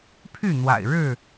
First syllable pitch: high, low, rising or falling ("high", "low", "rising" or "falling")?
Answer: falling